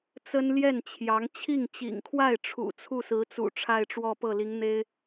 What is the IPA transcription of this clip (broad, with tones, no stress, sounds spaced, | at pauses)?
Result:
t͡s ə˥ n l j ɛ˥˩ n t͡ɕʰ j ɑ˧˥ ŋ t͡ɕʰ i˥˩ ŋ t͡ɕ ḭ˨˩ ŋ kʰ w a˥˩ ɪ̯ ʈ͡ʂʰ ṵ˨˩ t͡sʰ u˥˩ s ɹ̩˧˥ t͡s ṵ˨˩ ʈ͡ʂʰ a˥˧ ɪ̯ ʈ͡ʂ w ɔ˥˧ p ɤ˥˩ l i˧˥ ŋ n̪ e˥ ɪ̯